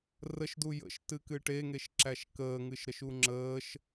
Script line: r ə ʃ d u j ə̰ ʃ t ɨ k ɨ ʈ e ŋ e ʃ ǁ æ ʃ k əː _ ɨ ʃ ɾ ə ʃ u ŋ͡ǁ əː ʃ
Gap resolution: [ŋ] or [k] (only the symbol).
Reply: ŋ